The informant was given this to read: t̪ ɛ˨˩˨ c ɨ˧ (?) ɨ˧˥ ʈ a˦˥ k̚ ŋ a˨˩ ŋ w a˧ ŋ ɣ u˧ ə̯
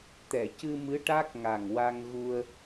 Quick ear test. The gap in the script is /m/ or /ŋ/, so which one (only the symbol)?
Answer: m